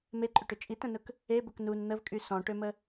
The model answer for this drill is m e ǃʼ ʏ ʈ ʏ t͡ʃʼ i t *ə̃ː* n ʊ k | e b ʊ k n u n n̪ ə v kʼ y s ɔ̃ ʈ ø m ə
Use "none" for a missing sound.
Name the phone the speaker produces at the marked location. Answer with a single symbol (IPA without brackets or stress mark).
ə̃